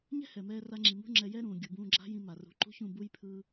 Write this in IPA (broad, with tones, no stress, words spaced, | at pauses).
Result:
ɲɛ̤˦hɛ˨ mɛː˧ra˧ŋ͡ǁi˨mṳ˦ ŋ͡ǁɛ˧jɛ˦ɾũː˨ ɡʲu˨bũː˧ɡ͡ǁa̤˦jĩ˧ ma˨rṳ˨˦ ǃṳ˦çũ˦˨ bu˧jpʰɯ˧